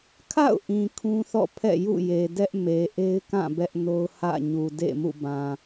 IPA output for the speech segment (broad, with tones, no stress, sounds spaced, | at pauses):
kʰ a̰˦˨ ʊ̯ ʔ ĩ˨ kʰ ũ˦ θ ɔ̰˦˨ pʰ ɛ̰˦˨ j ṵ˦˨ j e˨ d ɛ˦ ʔ m e˨ ʔ e˦ ɪ̯ k ã˦˨ b ɛ˦ ʔ n o˦ ʊ̯ h ä̰˦˨ ɲ u˨ d ḛ˦˨ m ṵ˦˨ b ã˨